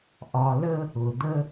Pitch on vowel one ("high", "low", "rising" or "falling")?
low